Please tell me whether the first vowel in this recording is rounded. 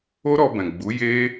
yes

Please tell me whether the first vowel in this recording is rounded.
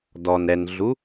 yes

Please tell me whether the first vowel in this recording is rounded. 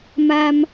no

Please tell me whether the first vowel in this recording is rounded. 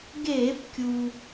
no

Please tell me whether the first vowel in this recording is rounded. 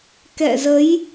no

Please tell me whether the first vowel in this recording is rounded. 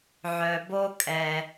yes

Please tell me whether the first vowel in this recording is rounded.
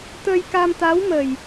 no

